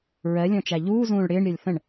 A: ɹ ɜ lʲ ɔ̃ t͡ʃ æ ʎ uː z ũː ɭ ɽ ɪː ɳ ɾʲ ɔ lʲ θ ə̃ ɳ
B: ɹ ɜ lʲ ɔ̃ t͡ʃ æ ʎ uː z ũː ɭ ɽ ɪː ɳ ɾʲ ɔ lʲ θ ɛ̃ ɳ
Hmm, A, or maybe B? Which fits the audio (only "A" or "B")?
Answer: A